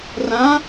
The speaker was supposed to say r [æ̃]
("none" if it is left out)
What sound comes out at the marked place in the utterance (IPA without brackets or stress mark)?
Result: ã